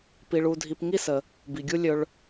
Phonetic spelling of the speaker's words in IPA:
p i˧ ɭ u˧ dʱ i˧ p ŋ i˥ s ə˩ | b i˩ ɡʲ u˥ lʲ ɵ˧ ɭ

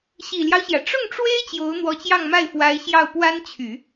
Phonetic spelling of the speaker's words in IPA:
ɕ i˨˩ l j ɑ˦ ʊ̯ ɕ j ä˩ ʈ͡ʂ ʊ˥˩ ŋ ʈ͡ʂ w e˥ ɪ̯ t͡ɕ j o˧˥ ʊ̯ n̪ w ɔ˧˥ t͡ɕ j ɑ˥˧ ŋ m a˥˩ ɪ̯ f w a˧˥ ɪ̯ ɕ j ɑ˥˩ ʊ̯ p w a˥ n t͡ɕʰ y˨˩˦

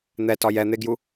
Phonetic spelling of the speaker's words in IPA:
n̪ ɛ t ɒ j ɛ n̪ e ɡ j u

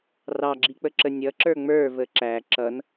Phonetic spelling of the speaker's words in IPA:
r ɑ ɡ͡ǁ i k͡p ə ǁ ə nʲ ʌ ǁ ə˞ ŋ͡m ə˞ v ə ǁ æ ǁ ʌ n

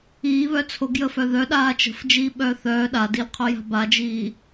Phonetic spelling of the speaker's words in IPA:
iː β œ t͡sʰ o ɡ j əː f œ ð œ ɗ aː t͡ʃ ə̤ f d͡ʒ iː ɓ œː θ œː ɗ a d i l qʰ œ j a̤ b a d͡ʒ iː

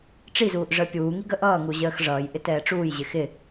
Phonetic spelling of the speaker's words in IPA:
ʈ͡ʂ i z uː ʔ ʐ əː pʲ uː ŋ i ɡ ə ʔ ʌː ŋ u ʑ əː x ʐ ʌː j ʔ ɪ t ɛː ʈ͡ʂ uː j ʑ ɪ x ɪ

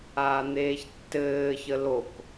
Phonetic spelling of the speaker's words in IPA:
aː n̪ eː ç tː ɘː ç ə l o k

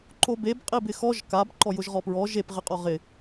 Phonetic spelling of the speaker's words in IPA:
ǃ o b e b qʼ i b ɪ x ɔ ʒ k a b ǃ ɔ j ʊ ʒ ʁ ɔ p ɹ ɔ ʒ e p ʁ ɪ qʼ ɔ ʁ ɪ

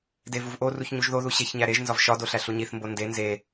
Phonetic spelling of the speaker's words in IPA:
d e v u v ʔ o r u ç ɲ u ʒ ð o ð u ɕ e ç ɲ æ ɾ e ʒ n z ɒ v ʃ ɒ d o ɬ æ ɬ u ɲ i θ m b o n d e n z e

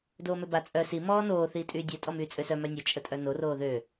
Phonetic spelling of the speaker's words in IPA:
d oː m ø b a t͡sʼ œ s i m ɔː n oː θ iː tʼ yː dʲ œ tʼ ɔ m yː t͡sʼ ø s œ m œ nʲ ø t͡ʃʼ ə tʼ œ n o r oː ð ø

